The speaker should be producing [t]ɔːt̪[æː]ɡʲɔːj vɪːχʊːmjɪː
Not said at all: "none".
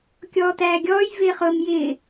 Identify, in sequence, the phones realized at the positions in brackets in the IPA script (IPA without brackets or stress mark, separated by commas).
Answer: kʲ, æː